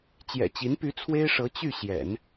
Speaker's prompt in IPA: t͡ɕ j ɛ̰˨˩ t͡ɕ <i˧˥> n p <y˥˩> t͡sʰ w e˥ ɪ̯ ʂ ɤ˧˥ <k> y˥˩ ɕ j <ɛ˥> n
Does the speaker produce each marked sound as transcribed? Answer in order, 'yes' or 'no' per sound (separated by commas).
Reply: yes, no, no, no